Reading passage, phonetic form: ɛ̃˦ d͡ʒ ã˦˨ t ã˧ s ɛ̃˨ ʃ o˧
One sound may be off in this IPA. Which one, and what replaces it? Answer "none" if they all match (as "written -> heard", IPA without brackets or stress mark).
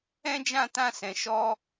o˧ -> ɔ˧